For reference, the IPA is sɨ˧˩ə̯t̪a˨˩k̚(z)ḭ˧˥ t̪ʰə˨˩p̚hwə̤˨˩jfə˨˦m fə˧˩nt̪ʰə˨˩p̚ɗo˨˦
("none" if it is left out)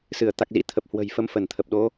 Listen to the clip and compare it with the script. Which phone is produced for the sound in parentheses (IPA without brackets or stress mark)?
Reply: z